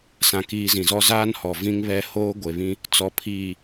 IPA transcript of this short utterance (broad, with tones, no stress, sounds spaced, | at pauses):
s ã˨ k iː˨ z ĩ˨ z ɔ˦ z aː˦ n h ɔ˨ v ĩ˦ ŋ β ɛ˦ h oː˦ ɡʷ e˨ β ĩ˦ | t͡s ɔ˨ pʰ iː˨